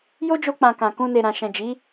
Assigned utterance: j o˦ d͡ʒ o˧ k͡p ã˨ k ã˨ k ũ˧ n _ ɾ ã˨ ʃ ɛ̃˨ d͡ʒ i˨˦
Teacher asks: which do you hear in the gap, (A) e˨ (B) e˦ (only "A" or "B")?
A